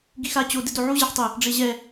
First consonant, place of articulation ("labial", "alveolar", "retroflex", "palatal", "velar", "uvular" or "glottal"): velar